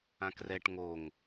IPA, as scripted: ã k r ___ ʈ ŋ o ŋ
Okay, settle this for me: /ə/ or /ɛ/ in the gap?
ɛ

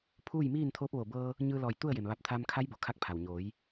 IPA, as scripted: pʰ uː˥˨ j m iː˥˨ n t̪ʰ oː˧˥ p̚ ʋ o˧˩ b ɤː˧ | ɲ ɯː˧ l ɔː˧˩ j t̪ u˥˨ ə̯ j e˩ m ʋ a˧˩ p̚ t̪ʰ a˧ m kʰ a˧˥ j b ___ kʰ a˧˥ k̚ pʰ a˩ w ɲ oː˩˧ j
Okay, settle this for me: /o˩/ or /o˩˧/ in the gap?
o˩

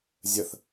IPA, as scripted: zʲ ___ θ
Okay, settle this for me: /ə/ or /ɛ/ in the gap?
ə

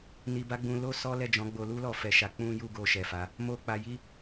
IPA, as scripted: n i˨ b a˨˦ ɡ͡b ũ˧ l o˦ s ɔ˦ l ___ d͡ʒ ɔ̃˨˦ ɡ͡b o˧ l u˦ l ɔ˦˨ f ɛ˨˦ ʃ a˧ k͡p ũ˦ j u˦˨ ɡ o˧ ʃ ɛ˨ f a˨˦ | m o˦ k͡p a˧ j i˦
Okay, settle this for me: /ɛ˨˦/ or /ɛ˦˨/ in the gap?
ɛ˦˨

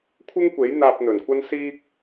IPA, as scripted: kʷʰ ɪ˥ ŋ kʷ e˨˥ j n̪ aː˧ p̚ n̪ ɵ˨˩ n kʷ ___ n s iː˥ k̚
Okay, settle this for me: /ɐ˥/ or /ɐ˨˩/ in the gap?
ɐ˥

